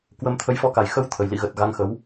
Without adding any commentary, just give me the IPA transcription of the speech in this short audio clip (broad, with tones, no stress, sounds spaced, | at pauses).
k w ə˧ m t̪ʰ ə˨˦ j f ɔ˨˦ k a˨˩ j x ə˨˦ w t̪ʰ ə˨˩ j l ḭ˧˨ ɣ ə˨˩ t̚ ɣ a˧ ŋ x ə˨˦ w